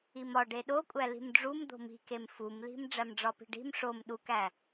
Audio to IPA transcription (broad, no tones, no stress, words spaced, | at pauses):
imɒ ɖeɗokʷʼæ li̤mɖ͡ʐum d̪o̤mi̤kem fumli̤m ɖ͡ʐæmɖ͡ʐɒpi̤ɖi̤m ʂom ɗukæ